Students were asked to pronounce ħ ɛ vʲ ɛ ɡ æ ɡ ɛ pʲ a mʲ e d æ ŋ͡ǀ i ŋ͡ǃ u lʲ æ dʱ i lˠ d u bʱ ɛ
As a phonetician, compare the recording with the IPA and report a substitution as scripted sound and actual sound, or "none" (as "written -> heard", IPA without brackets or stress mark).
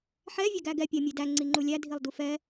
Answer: bʱ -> f